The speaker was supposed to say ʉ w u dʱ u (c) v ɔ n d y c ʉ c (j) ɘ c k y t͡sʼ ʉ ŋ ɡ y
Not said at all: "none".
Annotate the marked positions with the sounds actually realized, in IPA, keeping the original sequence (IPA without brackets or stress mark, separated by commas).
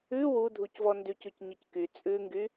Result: c, ɲ